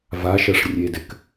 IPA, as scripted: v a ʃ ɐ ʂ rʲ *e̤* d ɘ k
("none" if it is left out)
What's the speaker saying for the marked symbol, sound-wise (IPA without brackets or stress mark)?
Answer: e